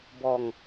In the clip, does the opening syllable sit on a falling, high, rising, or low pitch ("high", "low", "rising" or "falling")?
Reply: low